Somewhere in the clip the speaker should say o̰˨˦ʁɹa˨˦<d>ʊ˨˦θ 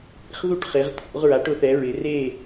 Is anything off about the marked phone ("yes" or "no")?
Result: yes